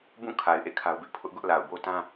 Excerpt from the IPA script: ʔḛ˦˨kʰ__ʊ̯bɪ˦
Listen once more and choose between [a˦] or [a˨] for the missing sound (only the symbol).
a˦